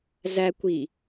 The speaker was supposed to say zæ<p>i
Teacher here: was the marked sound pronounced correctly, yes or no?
no